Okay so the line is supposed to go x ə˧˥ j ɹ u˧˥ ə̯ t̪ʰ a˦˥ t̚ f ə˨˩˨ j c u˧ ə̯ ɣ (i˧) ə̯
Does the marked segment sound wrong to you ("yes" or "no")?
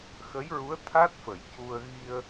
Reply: no